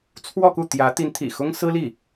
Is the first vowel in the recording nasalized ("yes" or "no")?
no